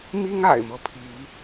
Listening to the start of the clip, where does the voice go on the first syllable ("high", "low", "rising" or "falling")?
high